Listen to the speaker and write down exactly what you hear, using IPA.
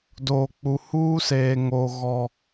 d oː˨ k͡p u˨ h uː˦ s eː˨ ŋ o˨ ɣ ɔ˨

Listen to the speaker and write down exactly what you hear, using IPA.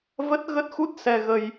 v ə˦˥ t̚ ɣ ə˦˥ t̚ x u˦˥ t̚ s ɛ˧ ɣ ə˧ j

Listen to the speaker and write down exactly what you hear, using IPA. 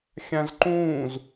xʲ ã z ǃ ũː z

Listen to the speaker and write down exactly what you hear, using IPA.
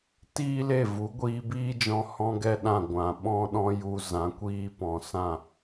t iː˦ l e˦˨ v u˨˦ ɡʷ iː˧ b iː˦ d͡ʒ ɔ̃˧ h ɔ̃˦ ɡ ɛ˦ ɗ ã˦˨ ɡʷ ã˨ ɓ ɔ̃˦ ɗ ɔ̃˦ j u˧ z ã˨˦ kʷ iː˧ p ɔ̃˨ s ã˦˨

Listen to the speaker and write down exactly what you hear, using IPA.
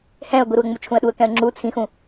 h ɛ̃ ə̯ ɡʷ i ɾ u ə̯ ŋ͡m u t͡ʃʰ ũ ə̯ ɗ u ə̯ k ɛ̃ ə̯ ŋ͡ǁ u t͡sʰ ĩ x ũ

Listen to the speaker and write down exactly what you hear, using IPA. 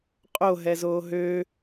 qʼ o ɦ ɛ z oː ɦ ø

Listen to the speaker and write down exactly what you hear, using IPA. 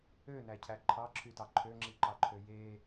ø n æ cʰ æ ǃʰ ɑ ǁʰ y t ɑ ǃʰ ø ŋ͡ǁ i ǃ ɑ ǃʰ ø j e

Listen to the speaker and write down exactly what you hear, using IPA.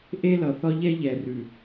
ʔ e˦ l ʌ˨ θ ɒ˦ ʎ ɛ˦ ʎ ɛ˨ r ʉ˨

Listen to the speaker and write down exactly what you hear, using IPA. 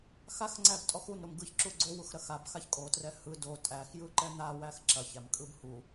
x a x ŋ͡ǀ æ b tʼ ɔ x u n ɾ o m ɡ ɯ ç ǁ u ɡ͡ǀ o w u x ɾ ɐ x a b x a ç kʼ o t r ɛ h ɯ d o tʼ æ x j ɯ ǃ ɛ n̪ a w æ x ǁ ɐ ç æ m kʼ ɯ b h u

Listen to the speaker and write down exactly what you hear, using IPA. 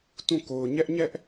t ũ˦˨ k o˨ ʊ̯ ɲ ɛ˦ ʔ ɲ ɛ˦ ʔ

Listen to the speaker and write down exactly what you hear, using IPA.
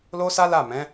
l o˦ s a˦ l a˦˨ m ɛ̃˨˦

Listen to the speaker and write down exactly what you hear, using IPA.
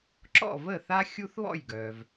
ǁ ɔ̰˥˩ v əː˥˩ θ a˦ xʲ u˦ θ β ɔ̰˥˩ j ɡ œ˩ v

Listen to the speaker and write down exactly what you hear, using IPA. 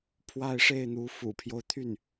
pʰ w a˥˧ ɪ̯ ʂ e˥˩ ɪ̯ n̪ u˧˥ f ṵ˨˩ pʰ j o˦ ʊ̯ t̪ʰ y˥˩ n

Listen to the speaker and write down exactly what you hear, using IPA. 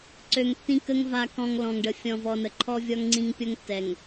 ǀ ø˨ ŋ tː ĩ˦ k ə˦ ŋ v a˨ k ɔ̃˨ ŋ l ɔ̃˨ ŋ ɖ ə˨ fʲ ɔ̃˨ v ɔ˨ n ə˨ ǃʰ ɔ˦ vʲ ɔ˦ ŋ ŋ͡ǀ ĩ˦ ŋ pʲ o˦ ŋ tː ɛ˨ ŋ

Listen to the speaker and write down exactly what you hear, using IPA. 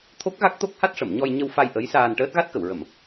t̪ʰ o˦˥ k̚ ɣ a˦˥ k̚ t̪ o˦˥ k̚ h a˦˥ t̚ ʂ ə˨˩˨ m ɲ ɔ˧ j ɲ ə˧ w f a˧ j ʔ ə˧˥ j s aː˧ n ʈ əː˦˥ t̚ ɣ a˦˥ t̚ k ə˨˩˨ w ɹ ə˨˩˨ m

